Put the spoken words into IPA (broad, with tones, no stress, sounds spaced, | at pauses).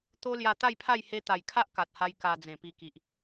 t̪ o˦ l j a˧ t̪ a˥˧ j pʰ a˥˧ j h e˧ t̪ a˨˩ j kʰ a˦ ʔ k a˨ t̚ h a˧ j k a˧ d͡z ẽ˨˩ p i˧ k i˨ ʔ